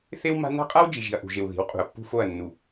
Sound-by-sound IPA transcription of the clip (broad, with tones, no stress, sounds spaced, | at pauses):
θ e˦ w m a̤˦ n a̤˦ qʼ a˦ w d͡ʒ i˨ ʒ i̤˨ ɐ̯ ʔ ṳ˨ ʒ e˨ w ð i̤˨˦ w qʼ ṳ˨ ɐ̯ pː ṳ˦ f o˦˨ ɐ̯ nː u˨